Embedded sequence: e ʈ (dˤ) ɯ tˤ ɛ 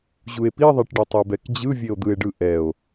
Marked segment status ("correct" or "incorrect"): incorrect